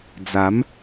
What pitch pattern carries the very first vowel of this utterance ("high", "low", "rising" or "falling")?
rising